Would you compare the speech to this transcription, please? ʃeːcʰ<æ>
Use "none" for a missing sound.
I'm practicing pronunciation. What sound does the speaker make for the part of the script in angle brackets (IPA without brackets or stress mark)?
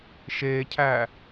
æ